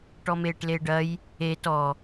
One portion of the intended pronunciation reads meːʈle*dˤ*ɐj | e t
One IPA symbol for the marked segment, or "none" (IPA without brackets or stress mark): ɖ